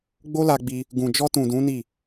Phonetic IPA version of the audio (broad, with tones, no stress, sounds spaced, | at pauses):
ɡ͡b o˦ l a˧ ɡ͡b i˧ | ɡ ũ˨ d͡ʒ ɔ˧ t ũ˨ d ũ˨˦ n i˦˨